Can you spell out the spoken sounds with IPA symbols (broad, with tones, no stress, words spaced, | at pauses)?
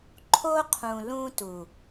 ǃʰo˦qʰũ˨ lũ˦tu˨